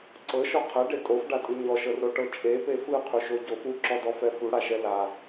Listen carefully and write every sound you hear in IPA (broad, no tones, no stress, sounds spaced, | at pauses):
ǀ ɤ ʃ ɔ qʰ ɛ ɖ e tʼ o f ɖ a tʼ ɯ ɲ ɔ ʃ ɤ r ɾ o ʈ ɤ t͡ʃʼ e p e f ɯ qʰ u ʃ o ɟ o f u ǁ ɔ d ɔ f ɛ f u ɽ a ʃ ɛ l a